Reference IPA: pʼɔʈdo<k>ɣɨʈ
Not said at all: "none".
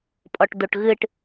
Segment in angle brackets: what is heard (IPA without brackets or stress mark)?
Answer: ʈ